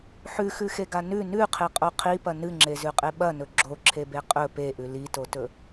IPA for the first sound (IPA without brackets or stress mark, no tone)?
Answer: ħ